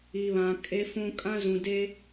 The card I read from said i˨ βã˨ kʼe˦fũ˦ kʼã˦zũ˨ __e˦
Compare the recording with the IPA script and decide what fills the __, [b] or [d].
d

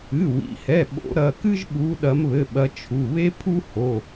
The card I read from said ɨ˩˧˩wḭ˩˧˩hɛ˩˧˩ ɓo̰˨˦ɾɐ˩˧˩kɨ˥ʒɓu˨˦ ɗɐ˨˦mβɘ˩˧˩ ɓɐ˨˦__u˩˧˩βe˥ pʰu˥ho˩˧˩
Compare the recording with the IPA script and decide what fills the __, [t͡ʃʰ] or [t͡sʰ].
t͡ʃʰ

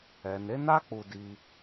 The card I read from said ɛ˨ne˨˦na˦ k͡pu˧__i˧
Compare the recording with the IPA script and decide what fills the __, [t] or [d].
d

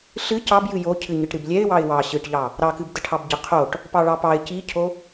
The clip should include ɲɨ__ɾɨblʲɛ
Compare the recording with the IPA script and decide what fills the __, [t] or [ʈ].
ʈ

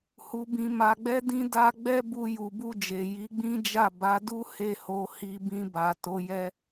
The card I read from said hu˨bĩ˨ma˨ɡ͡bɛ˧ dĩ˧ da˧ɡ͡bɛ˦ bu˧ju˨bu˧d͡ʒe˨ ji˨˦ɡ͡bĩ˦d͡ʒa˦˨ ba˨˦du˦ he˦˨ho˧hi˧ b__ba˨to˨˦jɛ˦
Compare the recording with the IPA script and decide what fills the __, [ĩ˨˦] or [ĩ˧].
ĩ˧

